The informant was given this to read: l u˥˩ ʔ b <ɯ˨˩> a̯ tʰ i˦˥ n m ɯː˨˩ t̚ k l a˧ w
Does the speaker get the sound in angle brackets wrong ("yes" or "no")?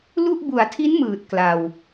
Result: yes